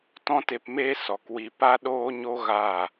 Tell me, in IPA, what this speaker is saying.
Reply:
tɔ̃˦te˧pmeː˦ sɔ˨kwi˧ pa˦ ɗoː˦ɲo˦ ɣa˦˨

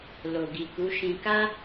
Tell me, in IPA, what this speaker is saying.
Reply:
lo˨ɡi˨ku˨˦ʃĩ˧ ka˦

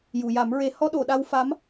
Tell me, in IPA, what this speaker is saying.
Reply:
ju˨˩˨ja˨˩˦mɹe˧˥ hɔ˧ɗo˨˩˨ ɗa˧w fa˧˥m

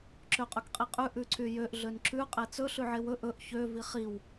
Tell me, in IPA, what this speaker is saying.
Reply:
ǁøqʼɵkqʼiqʼʉ ʔʉǀyjøʔ ɮønǁʉ qʼet͡sɵ ɬʉʕewɵ ʔɵʔ çø viχiw

